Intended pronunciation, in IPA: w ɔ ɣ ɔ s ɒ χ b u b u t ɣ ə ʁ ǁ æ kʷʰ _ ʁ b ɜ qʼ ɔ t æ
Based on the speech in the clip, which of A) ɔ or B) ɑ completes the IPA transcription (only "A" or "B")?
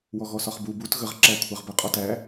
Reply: B